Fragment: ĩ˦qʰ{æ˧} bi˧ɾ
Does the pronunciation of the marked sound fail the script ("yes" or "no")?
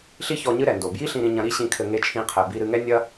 yes